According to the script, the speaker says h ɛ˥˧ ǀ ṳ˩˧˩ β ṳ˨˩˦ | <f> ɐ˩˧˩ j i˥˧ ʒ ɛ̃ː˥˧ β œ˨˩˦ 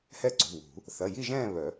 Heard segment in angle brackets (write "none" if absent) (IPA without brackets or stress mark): θ